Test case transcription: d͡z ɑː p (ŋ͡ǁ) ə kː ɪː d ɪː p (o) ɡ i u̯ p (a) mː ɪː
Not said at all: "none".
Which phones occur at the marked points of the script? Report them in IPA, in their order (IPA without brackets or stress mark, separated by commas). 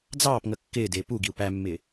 ŋ, u, æ